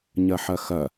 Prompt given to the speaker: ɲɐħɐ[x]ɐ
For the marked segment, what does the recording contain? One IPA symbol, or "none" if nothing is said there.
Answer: x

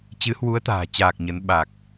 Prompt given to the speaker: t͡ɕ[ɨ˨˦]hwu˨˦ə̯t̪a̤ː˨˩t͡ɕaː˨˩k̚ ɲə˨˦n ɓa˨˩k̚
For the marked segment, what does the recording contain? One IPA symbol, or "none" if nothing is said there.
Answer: ɨ˨˦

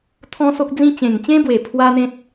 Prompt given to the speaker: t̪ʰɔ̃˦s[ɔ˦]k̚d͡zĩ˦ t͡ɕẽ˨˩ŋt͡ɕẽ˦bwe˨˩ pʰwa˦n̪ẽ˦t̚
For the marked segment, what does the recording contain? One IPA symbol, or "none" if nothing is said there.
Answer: o˦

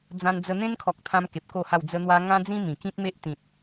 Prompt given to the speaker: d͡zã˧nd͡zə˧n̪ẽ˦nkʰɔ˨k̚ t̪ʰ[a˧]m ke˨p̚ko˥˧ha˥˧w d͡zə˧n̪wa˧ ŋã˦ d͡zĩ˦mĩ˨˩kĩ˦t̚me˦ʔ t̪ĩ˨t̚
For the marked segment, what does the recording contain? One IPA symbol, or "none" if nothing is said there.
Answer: ã˧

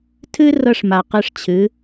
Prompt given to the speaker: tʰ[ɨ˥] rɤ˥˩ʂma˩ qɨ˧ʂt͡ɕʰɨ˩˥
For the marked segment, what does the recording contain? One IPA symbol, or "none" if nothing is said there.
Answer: ɨ˥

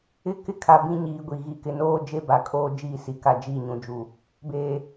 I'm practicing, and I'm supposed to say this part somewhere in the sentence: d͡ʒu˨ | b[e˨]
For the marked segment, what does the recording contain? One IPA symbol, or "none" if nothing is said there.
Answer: eː˨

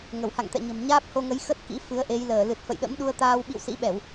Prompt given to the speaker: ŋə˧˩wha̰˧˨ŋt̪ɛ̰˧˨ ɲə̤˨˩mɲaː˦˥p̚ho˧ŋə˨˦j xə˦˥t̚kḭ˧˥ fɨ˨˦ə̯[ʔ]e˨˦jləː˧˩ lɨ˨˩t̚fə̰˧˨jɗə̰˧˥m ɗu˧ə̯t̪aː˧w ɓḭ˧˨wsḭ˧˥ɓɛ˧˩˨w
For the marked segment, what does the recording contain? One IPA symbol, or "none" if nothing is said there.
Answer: ʔ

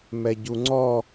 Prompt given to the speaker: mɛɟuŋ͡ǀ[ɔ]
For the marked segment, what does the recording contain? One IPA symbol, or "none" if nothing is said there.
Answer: ɔ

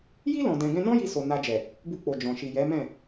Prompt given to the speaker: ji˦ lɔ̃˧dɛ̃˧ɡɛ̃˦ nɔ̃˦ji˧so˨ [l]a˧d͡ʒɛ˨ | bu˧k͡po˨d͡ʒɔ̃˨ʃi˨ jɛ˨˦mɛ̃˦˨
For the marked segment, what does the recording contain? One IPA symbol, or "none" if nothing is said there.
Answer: n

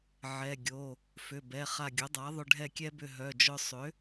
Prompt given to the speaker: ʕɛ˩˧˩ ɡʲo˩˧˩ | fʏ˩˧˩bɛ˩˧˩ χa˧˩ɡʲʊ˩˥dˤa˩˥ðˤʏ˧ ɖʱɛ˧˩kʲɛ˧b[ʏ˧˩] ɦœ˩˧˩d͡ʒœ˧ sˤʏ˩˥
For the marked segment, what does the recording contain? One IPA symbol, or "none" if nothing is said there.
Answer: ʏ˧˩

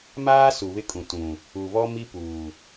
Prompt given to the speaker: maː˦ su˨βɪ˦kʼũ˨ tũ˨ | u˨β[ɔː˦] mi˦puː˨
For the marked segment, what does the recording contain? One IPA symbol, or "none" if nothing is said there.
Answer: ɔ˦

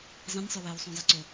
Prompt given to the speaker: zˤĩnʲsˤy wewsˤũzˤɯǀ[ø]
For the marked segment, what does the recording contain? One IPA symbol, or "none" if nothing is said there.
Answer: ø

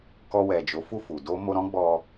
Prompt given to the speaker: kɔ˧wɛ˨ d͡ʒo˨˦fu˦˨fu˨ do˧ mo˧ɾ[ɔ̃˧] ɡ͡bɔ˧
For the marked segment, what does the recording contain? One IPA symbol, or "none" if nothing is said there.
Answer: ɔ̃˦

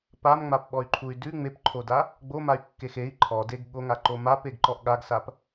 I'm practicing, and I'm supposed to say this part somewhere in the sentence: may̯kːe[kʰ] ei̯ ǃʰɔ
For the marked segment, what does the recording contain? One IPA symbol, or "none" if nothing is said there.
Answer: x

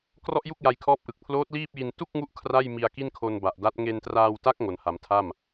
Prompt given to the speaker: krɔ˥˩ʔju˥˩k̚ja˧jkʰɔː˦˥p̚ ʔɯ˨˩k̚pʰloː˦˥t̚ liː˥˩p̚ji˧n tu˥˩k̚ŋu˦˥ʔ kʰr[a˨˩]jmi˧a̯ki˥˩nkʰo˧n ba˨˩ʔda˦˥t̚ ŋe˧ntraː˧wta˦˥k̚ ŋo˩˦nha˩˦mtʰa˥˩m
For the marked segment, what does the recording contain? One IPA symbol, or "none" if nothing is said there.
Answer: a˥˩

